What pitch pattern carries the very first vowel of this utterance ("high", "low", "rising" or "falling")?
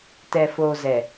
low